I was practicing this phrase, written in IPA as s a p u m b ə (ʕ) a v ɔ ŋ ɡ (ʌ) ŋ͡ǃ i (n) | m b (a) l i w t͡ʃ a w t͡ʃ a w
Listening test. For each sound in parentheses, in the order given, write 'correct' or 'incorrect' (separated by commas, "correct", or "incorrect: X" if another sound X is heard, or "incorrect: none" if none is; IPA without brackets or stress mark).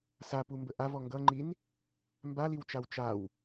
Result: incorrect: ʔ, correct, correct, correct